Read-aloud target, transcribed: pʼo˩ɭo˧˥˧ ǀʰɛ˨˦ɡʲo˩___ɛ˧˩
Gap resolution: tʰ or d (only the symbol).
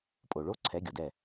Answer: d